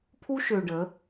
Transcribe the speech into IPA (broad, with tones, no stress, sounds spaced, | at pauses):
pʰ u˦ ʃ ø˨ ɖ ə˨˦